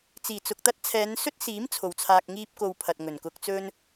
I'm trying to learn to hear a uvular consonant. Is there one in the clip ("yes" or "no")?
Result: no